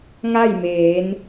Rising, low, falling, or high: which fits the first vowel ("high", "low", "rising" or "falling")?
falling